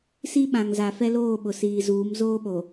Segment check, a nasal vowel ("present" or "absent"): present